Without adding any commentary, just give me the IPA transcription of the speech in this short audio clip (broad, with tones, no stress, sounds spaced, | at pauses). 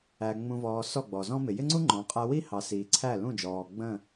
æ˨ ŋ͡m ũ˨ v ɔː˨ s ɔ˦˨ ɡ͡b ɔ˨ z ɔ̃˦ m ɪ˨ j ɪ˦ ŋ͡ǀ u˦ ŋ͡ǃ ɔ̃˨˦ qʼ æ˧ w i˦ h ɑ˨ s iː˨ ǀʰ æ˦˨ l ũ˦˨ d͡ʒ ɔː˨ ɡ͡b ə̃˦˨